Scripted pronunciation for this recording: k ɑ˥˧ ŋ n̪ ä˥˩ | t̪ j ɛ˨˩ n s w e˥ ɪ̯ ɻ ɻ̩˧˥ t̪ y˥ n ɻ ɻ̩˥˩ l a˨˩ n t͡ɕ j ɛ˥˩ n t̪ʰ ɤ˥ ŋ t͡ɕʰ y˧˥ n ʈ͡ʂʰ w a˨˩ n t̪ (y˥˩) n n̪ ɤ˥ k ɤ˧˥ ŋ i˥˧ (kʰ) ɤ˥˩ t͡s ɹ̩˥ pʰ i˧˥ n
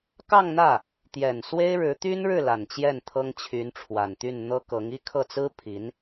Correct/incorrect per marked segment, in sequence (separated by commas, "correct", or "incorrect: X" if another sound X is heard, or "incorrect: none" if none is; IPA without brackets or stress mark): correct, correct